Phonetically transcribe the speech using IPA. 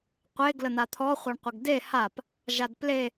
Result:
qʷe ɡlən̪at̪ʰɔ χʷaɳqʷəɡde hap | ʒadple

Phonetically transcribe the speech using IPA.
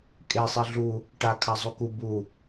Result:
kʼesˤi ɮu | ʈakʰa zˤuku bu

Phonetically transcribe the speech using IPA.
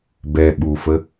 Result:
bɛ ɓufə

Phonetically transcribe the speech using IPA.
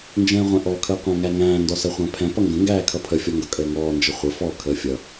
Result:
nd͡ʒɛ̃ːʁʷɛ̃ʔɔ kʰəːqʷæ̃ŋæŋæ̃ː ndɔsɜχʷæ̃pʰɛ̃ pʌŋɡə̃ ŋɡæːkʰʌpʰə fʲɔŋɡʌkʼəːŋɔː nd͡ʒəχʷə fɔ kʰəːfʲʌ

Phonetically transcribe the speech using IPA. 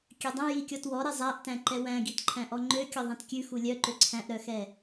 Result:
kʲødˤɛ̃ jikʲɔtwɔɾɛ zˤæʔtæ̃ǃɛ wæ̃ɡitǃʰæ̃ ʔɔŋ͡ǃø kʲɔðˤɛ̃tkʲʉ xulʲœ ǃøǀʰæ̃ʔɾœxɛ

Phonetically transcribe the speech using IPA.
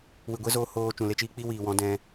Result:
wɨ˨ɡʷe˦zoː˧ hoː˧ t͡ʃũ˨le˧t͡ʃiː˧ k͡pi˦wiː˨wɔ̃˨˦ dɛ̃˦

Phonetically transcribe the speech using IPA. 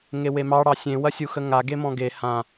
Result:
ŋewemɑ ɽɑsʲẽ wɐsʲuxəŋa ɡemɔ̃ɡe hã

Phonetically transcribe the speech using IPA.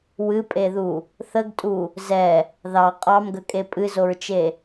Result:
wɨpʼeðu | θəɡtʼu | zɛ | ðɑ qʼɑmɡəkʼe pʼɨzoɹt͡ʃe

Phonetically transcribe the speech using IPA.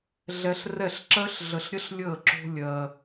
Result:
ɮɛ˧ɬrɛ˦˨ɬǁɜ˦ɬ ɮə˧ɬɾʲə˦ɬlʲəː˦˨ ǁo̤˦lʲɜ˧

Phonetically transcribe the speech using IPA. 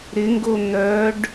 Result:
ɾɪŋɡo n̪œɖ

